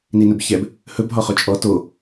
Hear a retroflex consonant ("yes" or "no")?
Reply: no